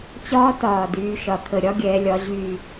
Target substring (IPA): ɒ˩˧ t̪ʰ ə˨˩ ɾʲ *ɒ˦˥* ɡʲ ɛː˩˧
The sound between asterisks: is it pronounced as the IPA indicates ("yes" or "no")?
yes